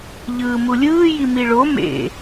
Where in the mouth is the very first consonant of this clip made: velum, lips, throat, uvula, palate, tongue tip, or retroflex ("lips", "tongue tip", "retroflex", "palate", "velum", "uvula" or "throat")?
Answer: palate